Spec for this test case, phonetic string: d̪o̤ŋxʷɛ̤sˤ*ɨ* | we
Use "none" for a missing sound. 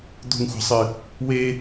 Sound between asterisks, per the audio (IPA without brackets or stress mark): ɨ